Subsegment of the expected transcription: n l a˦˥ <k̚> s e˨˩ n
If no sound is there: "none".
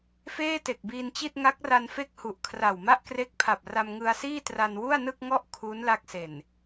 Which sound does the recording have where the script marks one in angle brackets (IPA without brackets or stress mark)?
k̚